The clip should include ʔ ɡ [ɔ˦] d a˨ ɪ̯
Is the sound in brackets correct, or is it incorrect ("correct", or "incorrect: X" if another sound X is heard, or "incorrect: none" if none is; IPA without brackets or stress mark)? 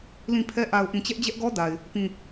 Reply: correct